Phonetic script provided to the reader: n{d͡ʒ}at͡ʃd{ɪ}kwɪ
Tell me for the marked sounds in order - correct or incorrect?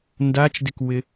incorrect: d, correct

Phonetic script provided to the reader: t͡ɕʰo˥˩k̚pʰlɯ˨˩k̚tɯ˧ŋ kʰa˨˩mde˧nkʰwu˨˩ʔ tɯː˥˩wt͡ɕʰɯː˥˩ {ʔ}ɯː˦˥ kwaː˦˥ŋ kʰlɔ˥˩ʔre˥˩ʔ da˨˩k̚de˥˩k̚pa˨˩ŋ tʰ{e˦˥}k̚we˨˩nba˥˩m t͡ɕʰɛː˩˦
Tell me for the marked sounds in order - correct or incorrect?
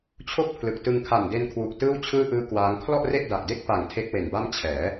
correct, correct

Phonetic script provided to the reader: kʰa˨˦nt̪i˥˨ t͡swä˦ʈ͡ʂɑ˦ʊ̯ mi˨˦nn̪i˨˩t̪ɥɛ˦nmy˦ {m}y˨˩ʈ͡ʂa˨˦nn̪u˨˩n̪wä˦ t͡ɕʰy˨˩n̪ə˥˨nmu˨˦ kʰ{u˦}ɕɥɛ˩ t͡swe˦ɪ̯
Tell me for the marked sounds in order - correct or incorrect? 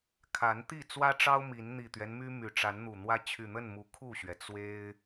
correct, incorrect: u˥˨

